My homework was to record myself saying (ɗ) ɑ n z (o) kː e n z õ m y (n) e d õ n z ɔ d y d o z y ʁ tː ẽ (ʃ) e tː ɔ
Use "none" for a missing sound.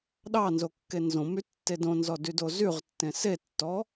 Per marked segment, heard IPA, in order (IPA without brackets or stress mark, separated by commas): ɗ, o, tː, s